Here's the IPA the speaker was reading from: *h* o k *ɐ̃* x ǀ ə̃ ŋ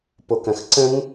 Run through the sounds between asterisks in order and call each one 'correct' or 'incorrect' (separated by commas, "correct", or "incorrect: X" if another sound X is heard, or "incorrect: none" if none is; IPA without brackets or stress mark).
incorrect: p, correct